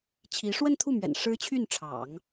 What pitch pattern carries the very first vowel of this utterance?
rising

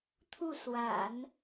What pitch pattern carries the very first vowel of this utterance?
falling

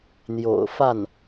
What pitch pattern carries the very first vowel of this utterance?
low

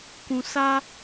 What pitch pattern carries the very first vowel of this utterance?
low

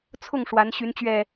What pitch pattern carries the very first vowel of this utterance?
falling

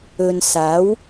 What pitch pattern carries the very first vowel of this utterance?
low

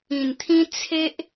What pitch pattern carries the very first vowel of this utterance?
low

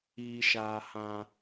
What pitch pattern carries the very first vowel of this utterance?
low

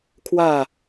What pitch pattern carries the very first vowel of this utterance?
falling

